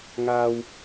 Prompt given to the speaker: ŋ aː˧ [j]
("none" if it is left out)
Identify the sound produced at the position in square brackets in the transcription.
w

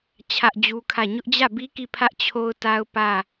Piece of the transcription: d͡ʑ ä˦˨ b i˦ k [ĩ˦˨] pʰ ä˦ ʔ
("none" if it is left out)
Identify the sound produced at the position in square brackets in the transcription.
i˦˨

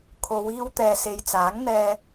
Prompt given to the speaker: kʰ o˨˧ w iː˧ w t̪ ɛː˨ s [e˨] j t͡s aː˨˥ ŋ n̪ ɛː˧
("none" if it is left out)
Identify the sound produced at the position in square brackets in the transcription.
e˨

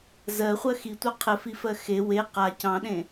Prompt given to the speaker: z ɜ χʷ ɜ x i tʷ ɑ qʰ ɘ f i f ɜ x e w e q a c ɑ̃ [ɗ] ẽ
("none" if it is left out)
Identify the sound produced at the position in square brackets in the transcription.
ɗ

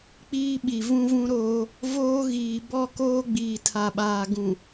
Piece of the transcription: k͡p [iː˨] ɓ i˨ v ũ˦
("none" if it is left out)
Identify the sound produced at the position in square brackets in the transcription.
iː˦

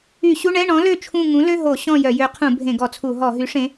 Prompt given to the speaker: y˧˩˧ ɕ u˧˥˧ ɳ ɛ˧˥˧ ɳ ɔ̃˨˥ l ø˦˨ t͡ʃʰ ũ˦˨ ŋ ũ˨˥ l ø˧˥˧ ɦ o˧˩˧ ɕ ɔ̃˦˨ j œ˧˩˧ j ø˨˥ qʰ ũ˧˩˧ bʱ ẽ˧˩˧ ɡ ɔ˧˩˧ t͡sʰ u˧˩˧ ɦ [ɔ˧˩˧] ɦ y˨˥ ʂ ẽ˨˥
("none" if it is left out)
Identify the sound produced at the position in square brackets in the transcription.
ɔ˧˩˧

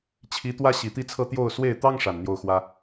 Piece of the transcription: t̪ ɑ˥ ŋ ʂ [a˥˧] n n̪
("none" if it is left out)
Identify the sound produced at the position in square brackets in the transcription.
a˨˩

